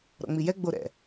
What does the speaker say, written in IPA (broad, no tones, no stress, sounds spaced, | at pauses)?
ɾ ɔ̰ ŋ͡m i j ɛ ɡ͡b o ɾ ɛ̰